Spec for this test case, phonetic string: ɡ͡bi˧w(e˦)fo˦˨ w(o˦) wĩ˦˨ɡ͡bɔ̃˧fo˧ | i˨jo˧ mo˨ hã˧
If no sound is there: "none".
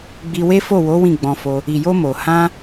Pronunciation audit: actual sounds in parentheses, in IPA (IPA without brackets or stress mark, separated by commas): e˦, o˨˦